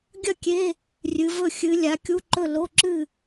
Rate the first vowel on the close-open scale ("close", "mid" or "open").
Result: open